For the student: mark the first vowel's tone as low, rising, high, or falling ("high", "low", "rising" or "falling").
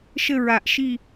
falling